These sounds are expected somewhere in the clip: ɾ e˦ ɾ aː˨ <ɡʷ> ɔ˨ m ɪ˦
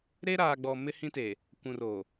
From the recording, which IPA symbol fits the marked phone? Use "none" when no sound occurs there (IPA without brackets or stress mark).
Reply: ɡ͡b